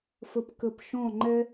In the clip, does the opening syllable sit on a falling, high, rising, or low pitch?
high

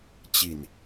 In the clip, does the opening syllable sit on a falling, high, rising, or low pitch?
low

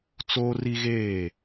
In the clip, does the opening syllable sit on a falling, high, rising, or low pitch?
high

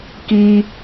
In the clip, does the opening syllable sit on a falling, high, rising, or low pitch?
high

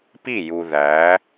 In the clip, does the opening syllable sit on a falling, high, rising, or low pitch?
falling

